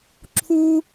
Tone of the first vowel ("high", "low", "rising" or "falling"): high